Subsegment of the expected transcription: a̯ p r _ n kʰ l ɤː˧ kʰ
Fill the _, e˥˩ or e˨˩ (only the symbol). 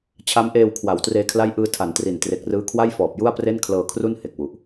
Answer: e˥˩